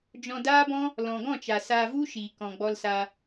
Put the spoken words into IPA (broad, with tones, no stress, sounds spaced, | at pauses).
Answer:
d͡ʒ ɔ̃˧ d aː˦ b ɔ̃˦ | l ɔ̃˨ ɡ ɔ̃˦˨ t͡ʃ a˨ s a˧ v u˦ ʃ iː˨ k ɔ̃˨ ɡ͡b ɔ˧ l s a˧